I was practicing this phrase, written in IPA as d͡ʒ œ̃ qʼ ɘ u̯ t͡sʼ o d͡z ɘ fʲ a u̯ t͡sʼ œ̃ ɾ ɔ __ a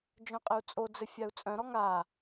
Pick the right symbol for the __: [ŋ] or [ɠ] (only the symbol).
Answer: ŋ